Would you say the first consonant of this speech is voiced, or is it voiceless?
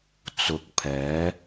voiceless